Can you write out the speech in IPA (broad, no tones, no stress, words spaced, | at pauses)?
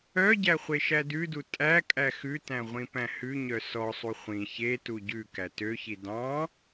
œɟæ χʷeʃædʉdu tʼæ kʼæxʉtæ̃ ʁʷĩpæ̃hʉɲœ sɔsˤu χʷĩ çetu ɟʉkæ tøçi dɑ̃